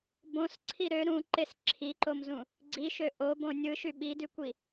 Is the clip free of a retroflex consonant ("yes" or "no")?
yes